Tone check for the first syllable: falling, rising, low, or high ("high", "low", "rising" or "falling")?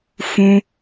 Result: high